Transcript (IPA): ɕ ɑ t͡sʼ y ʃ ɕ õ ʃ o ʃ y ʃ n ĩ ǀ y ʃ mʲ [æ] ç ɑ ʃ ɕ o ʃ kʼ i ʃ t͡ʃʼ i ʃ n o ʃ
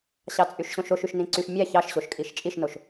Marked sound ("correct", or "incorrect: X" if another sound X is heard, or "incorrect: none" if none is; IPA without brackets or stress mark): correct